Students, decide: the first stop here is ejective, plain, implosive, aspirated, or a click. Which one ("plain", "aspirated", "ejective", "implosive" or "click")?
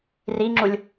click